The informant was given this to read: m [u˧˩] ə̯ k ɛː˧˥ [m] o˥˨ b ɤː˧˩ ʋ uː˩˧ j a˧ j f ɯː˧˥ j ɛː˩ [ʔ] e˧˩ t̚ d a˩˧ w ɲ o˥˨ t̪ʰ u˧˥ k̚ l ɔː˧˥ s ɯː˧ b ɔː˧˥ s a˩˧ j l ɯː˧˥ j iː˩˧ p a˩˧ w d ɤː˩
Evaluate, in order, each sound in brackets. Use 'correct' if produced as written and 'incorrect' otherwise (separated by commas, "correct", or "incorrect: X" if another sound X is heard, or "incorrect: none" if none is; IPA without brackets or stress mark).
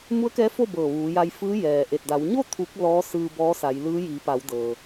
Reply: incorrect: u˧˥, incorrect: f, correct